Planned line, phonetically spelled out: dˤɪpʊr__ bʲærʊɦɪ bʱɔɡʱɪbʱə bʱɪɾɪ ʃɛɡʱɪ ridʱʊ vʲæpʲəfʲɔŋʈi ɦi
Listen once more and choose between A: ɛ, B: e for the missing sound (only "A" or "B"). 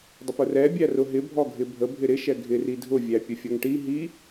A